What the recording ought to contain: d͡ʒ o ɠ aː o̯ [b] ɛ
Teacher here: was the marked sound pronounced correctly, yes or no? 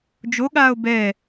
yes